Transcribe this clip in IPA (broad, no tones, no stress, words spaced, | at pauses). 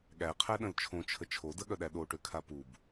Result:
ɠæqʰæɗə̃l t͡ʃʰõt͡ʃʰə t͡ʃʰo dəɠœɗæ ɗoʈøkʰa pub